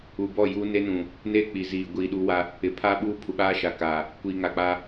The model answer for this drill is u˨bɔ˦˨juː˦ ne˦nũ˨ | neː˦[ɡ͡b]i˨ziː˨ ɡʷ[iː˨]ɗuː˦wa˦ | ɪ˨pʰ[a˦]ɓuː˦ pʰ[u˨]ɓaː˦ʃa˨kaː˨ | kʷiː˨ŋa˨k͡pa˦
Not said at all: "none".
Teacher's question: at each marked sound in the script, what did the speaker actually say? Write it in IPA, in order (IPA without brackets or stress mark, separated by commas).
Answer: k͡p, iː˨, a˦, u˨